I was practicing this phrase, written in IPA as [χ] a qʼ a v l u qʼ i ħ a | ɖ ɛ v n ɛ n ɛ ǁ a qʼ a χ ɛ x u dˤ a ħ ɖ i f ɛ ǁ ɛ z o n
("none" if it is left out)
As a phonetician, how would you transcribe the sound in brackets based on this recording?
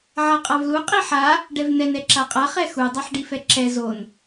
ʕ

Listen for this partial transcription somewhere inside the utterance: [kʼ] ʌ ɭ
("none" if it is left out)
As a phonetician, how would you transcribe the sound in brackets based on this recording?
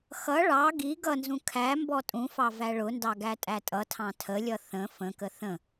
x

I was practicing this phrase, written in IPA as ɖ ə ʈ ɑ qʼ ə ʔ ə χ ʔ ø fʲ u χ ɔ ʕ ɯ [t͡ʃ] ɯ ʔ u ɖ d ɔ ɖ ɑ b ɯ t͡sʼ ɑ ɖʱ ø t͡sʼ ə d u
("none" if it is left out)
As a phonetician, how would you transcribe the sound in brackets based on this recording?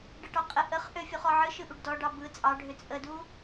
ʃ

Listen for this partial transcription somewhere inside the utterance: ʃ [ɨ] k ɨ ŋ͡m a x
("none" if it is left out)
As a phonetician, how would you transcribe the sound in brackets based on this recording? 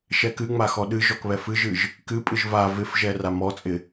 ɛ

